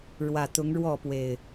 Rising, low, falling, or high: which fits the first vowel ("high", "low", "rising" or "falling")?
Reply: low